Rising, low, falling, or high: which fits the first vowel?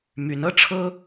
rising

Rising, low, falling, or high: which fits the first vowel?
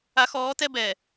rising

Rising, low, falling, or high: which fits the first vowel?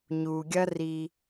low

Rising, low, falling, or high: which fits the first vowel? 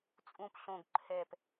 low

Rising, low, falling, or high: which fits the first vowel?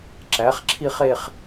rising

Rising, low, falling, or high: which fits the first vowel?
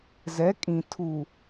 rising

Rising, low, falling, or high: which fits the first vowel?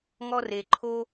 high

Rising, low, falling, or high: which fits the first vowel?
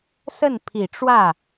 falling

